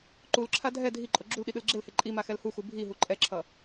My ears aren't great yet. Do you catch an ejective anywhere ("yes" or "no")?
yes